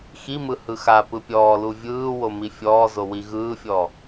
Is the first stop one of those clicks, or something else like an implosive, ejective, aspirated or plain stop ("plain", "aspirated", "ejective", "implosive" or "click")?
plain